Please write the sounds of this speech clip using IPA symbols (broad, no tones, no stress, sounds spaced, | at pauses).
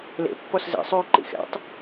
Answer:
l ḛ pː ɔ s z ḛ sˤ yː ǃ ḭ x ɛ̰ tˤ